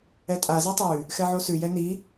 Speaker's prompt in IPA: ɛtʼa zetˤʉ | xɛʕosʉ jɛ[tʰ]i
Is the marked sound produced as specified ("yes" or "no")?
no